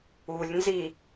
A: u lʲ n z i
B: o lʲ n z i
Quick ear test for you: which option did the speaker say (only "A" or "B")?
A